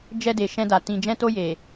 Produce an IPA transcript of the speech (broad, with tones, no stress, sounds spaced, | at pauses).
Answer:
d͡ʒ ɛ˧ d e˨ ʃ ɛ̃˧ d a˨ t ĩ˨ d͡ʒ ɛ̃˧ t o˧ j e˨